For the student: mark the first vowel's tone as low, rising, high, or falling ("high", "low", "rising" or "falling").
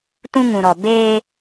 high